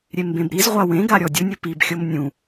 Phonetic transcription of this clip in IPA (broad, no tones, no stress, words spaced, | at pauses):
ɾʲembẽbɾizʁʷa wẽɡa ɾʲɔdʲʊnʲʊ pibxʲom nʲũ